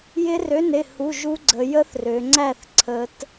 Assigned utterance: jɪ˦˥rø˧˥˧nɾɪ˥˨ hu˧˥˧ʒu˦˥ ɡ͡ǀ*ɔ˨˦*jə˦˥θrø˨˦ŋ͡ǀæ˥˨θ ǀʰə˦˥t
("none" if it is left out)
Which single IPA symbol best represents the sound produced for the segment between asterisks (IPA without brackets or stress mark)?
ə˨˦